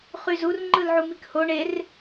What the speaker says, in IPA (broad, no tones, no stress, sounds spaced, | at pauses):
χ y z u r ŋ͡ǃ ɯ l ʕ u m i k h o ɳ e r